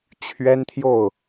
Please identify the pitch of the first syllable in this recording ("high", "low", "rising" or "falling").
high